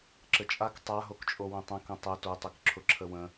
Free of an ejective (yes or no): no